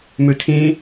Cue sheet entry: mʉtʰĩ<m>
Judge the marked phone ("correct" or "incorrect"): incorrect